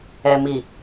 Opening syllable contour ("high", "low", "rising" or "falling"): low